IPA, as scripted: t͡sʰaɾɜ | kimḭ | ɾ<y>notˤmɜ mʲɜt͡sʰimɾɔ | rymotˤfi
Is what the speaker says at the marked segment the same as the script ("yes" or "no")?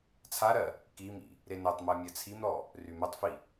no